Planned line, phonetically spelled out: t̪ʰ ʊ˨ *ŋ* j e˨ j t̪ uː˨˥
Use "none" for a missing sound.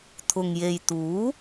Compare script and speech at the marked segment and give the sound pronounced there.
ŋ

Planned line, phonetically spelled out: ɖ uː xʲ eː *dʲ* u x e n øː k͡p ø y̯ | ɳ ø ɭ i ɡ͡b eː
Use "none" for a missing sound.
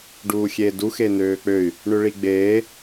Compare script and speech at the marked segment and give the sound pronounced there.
d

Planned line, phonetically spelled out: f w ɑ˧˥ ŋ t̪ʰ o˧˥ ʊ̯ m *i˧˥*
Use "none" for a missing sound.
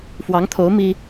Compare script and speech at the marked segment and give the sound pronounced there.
i˥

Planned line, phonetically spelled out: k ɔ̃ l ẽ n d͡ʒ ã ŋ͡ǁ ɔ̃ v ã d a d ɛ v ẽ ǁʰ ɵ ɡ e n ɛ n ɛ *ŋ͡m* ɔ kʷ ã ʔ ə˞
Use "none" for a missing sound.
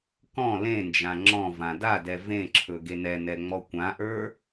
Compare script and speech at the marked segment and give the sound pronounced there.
ŋ͡m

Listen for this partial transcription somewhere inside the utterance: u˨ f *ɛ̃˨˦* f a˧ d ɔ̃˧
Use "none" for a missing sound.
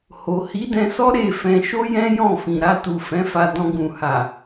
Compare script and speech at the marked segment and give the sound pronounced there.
ɛ̃˨˦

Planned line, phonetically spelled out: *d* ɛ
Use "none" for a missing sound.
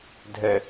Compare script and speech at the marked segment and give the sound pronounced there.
dʱ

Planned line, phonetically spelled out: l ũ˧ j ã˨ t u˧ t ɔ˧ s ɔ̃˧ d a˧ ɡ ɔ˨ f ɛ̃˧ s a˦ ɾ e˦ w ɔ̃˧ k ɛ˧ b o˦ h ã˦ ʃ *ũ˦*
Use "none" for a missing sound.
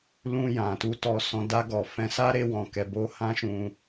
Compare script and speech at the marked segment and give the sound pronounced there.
ũ˧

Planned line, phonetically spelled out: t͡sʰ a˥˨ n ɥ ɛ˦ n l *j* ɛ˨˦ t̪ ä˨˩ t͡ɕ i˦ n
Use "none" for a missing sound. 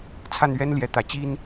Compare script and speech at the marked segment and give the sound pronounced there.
j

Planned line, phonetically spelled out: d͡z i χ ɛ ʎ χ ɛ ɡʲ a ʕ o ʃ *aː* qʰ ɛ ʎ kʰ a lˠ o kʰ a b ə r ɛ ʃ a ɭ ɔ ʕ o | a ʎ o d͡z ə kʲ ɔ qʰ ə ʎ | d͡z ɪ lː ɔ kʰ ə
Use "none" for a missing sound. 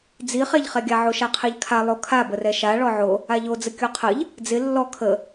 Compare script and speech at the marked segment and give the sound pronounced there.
a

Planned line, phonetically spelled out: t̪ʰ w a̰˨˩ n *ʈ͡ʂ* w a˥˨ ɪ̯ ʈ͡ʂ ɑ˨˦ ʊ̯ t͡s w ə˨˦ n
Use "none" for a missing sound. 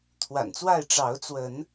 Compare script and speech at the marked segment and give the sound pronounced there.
t͡s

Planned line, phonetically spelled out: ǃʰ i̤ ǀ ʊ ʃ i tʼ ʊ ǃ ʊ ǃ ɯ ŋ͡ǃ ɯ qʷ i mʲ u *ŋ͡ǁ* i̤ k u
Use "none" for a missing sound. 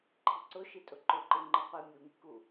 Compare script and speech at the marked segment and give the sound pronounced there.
ŋ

